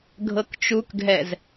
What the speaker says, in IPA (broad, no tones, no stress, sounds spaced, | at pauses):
ɡʱ ɤ k t͡ʃ u k ɡʱ ɛ z